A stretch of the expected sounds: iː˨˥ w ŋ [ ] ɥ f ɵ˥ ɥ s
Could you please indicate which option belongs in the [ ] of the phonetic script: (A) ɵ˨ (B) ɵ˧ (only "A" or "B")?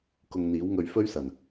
B